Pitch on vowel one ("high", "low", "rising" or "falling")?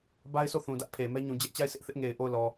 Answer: high